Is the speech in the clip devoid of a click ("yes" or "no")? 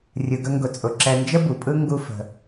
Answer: no